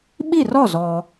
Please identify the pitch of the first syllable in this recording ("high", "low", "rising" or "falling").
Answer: falling